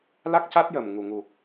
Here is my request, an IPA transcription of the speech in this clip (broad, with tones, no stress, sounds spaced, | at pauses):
l a˦˥ k̚ c a˦˥ t̚ j əː˨˩ m ŋ u˨˩ ŋ u˨˩